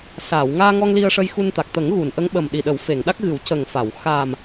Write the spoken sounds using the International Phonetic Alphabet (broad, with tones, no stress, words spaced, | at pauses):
saː˨˩˨w ŋaː˧ŋɔ˧ŋ li˧ə̯ʂə˧jxu˧nt̪a˨˩k̚ t̪ə˨˩˦ŋ ɣu˨˩˨nʔə˧˥ŋ ɓə˨˩mɗi˨˩ɗə˨˩˦w fe˨˩˨ŋɗa˦˥k̚ɣɨ˨˩˦w cə˨˩ŋfa˨˩˨w xa˨˩m